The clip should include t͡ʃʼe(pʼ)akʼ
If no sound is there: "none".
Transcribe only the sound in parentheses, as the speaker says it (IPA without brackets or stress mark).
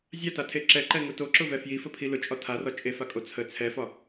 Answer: f